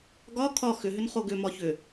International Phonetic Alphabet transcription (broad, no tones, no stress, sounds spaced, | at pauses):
ɡ ɒ kʰ ɒ x ʏ ɦ ʏ n χ o ɡ ʏ m ɒ ç ʏ